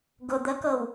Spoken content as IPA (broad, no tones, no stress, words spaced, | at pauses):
ɡʊ d̪əkɤw